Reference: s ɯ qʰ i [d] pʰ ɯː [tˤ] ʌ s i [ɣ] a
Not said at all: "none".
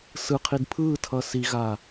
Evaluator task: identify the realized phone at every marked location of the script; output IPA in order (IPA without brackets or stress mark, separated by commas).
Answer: d, tʰ, ɣ